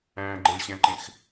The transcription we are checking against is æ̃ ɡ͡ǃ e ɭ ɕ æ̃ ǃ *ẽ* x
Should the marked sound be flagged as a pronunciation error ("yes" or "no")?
no